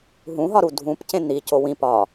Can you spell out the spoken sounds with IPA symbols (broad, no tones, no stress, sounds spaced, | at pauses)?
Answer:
ɦ ũ ɦ ɒ ɾ u dʱ ũ p c ẽ n̪ i c o w ĩ p ɒ